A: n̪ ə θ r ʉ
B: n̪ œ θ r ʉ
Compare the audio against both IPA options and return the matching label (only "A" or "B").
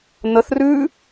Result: A